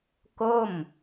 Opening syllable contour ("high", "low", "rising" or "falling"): falling